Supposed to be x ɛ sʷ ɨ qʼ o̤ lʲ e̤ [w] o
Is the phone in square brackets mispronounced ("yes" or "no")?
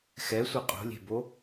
yes